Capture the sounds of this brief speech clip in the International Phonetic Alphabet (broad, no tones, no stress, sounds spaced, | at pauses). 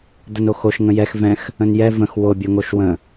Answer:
d̪ ə n o x o ʃ ŋ ə̃ j ɛ x v ɛ̃ x | ə̃ n j ɛ v ə̃ x w o bʲ o ŋ o ʃ w ə̃